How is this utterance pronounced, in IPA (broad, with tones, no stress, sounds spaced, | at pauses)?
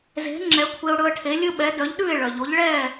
z e̤˩˥ ŋ͡ǁ ɛ˩˥ kʷʰ e˧ ʊ̯ ɽ ɵ˧ ə̯ ʈʰ e˩˥ lʲ ɵ˥ ɓ ɛ˩˥ d œ˩˥ ʎ ɗ ʉ˥˩ ɪ̯ ɭ œ˩ ʎ o˩˥ ʎ ɭ ɛ˥˩